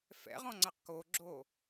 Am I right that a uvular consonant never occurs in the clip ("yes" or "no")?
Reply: no